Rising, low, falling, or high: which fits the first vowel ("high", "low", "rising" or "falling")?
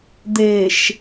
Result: low